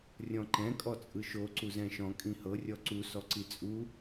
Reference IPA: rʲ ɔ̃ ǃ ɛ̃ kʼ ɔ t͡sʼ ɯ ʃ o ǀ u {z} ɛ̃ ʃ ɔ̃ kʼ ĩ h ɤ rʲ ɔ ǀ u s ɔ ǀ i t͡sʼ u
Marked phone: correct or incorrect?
correct